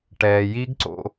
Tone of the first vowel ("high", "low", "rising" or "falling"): low